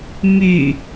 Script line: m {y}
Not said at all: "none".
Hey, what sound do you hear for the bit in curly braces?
y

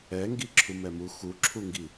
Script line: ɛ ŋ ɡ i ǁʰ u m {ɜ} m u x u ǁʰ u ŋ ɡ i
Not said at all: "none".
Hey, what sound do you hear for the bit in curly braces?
ɛ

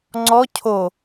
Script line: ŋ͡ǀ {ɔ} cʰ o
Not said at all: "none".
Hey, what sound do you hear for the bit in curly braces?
ɔ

